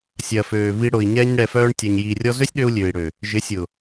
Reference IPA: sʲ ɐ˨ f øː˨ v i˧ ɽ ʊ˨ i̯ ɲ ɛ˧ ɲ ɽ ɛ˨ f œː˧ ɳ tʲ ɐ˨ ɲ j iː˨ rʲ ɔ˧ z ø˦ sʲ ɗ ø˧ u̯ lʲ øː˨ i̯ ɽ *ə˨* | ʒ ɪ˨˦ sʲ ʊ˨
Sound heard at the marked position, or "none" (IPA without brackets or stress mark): ø˨